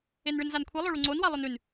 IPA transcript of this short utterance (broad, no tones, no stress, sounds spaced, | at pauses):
e n ɭ ɨ n z a n kʷʰ i lˠ o ɭ u ŋ͡ǀ o n w a lˠ ɵ n ʉ n